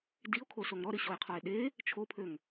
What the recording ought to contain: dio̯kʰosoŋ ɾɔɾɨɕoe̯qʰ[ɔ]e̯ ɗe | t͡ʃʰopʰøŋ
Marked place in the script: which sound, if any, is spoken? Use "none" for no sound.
ɔ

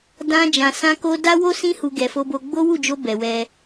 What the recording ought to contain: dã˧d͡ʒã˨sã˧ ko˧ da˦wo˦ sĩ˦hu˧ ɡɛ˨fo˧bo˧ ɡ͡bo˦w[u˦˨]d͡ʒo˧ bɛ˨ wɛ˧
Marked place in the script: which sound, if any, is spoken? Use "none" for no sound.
u˦˨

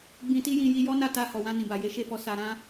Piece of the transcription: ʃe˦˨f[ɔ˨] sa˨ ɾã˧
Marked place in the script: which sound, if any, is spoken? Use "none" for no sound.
ɔ˧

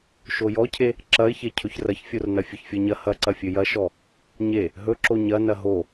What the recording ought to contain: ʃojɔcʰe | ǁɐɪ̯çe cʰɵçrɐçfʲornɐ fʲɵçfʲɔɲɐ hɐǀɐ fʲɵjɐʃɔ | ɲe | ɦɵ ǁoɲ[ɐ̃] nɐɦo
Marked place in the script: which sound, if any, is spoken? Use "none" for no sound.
ɐ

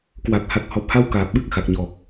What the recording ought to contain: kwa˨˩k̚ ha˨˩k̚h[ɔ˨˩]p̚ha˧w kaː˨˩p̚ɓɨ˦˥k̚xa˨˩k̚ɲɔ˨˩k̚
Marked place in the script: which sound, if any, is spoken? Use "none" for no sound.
ɔ˨˩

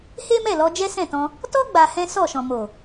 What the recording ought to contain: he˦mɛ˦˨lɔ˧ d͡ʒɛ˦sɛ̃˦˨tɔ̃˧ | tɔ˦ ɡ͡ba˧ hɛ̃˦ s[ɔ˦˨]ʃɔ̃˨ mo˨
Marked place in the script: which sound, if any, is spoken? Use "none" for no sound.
ɔ˦˨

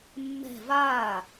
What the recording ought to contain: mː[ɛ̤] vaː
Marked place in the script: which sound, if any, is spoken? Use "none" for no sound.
ɛ̤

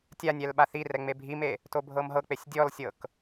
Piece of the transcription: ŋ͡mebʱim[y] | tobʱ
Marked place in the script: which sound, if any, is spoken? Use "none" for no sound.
e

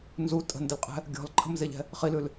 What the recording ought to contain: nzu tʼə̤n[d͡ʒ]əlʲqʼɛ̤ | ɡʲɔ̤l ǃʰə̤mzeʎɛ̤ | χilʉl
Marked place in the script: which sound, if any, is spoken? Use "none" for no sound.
d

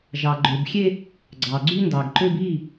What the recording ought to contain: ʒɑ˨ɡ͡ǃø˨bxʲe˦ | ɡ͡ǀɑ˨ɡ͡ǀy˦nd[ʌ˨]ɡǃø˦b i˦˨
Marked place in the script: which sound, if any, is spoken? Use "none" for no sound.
ɑ˨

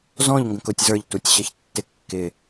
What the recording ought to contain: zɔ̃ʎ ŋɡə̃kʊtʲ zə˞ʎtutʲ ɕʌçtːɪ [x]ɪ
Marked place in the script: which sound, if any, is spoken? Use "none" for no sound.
kː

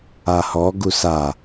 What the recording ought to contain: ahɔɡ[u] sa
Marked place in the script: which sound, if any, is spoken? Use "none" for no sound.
u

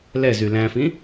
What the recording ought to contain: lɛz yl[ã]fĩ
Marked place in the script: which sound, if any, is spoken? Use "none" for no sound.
æ̃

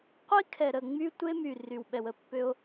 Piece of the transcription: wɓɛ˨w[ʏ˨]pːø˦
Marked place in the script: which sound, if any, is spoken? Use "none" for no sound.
ə˨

